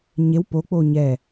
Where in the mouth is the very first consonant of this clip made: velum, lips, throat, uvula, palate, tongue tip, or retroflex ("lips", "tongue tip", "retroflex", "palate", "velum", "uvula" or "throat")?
palate